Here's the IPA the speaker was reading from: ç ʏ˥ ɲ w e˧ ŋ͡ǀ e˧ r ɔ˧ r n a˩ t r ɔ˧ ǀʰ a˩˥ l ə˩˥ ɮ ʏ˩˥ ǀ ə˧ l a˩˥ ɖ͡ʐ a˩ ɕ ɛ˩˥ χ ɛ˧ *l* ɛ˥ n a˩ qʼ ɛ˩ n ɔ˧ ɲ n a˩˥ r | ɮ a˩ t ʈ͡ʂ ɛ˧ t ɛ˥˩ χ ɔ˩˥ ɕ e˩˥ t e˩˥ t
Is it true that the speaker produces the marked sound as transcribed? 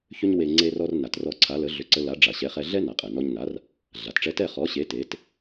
no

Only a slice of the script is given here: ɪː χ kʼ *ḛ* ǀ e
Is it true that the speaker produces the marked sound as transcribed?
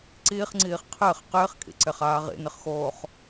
no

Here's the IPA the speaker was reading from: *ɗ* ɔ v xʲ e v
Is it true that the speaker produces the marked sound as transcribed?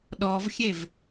yes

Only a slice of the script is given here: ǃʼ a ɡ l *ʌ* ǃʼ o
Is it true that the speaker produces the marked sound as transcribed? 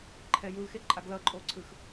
yes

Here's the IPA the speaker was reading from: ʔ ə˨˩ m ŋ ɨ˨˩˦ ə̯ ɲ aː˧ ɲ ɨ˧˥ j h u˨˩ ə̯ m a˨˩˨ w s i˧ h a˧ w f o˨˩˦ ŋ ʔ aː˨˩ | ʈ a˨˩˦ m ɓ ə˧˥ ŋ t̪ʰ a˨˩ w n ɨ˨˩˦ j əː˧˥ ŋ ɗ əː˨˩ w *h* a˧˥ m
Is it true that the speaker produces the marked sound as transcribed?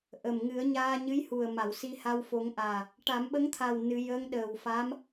no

